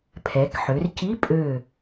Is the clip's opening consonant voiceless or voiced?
voiceless